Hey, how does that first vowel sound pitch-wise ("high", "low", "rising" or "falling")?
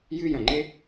high